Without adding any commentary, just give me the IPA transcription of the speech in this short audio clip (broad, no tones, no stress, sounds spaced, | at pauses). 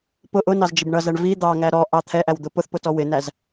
p ʊ ʔ ʊ n ɑ z d͡ʒ ɪ b ɳ ʌ z æ ɳ v i d̪ ɑ ŋ æ ɾ ɔ ʔ ɑ t̪ʰ ɛ ʔ æ w d̪ ʊ p ʊ θ p ʊ t ɔ w ɪ n æ z